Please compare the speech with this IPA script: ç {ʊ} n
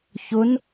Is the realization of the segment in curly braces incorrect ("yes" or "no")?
no